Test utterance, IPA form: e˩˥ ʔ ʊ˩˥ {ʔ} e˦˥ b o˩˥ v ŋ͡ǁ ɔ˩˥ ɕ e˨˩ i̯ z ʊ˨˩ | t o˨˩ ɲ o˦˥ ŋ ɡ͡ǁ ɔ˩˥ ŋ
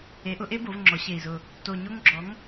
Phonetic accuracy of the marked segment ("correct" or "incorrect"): correct